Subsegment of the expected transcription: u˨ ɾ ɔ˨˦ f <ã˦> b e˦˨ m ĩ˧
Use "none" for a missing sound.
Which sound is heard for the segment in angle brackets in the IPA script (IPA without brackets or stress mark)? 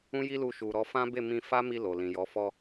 ã˦